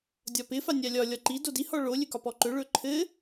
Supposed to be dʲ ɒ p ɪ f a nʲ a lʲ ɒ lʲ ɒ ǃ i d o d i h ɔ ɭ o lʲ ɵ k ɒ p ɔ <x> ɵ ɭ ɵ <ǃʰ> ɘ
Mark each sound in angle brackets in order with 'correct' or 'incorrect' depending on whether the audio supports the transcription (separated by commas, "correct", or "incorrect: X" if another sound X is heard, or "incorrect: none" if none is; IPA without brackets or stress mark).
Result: incorrect: ǃ, correct